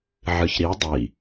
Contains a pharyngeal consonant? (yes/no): yes